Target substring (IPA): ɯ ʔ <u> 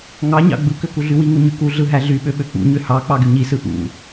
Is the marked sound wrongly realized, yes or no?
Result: yes